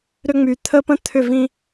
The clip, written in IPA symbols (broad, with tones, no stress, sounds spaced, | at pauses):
ɾ ʏ˦ ŋ͡m y˨ t̪ʰ ə˦ p ə̃˦ t̪ʰ ʏ˦˨ v ĩ˦